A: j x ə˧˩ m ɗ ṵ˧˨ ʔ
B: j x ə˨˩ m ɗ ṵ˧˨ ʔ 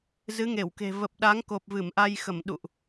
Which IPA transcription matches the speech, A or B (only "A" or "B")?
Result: A